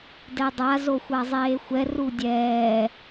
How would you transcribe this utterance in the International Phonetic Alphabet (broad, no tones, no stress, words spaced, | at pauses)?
dɛdˤa zoxʷazˤeːxʷɛ rudʲɛː